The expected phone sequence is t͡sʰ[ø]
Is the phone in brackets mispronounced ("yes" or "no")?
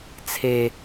yes